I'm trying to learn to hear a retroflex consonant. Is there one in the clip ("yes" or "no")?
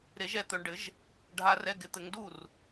yes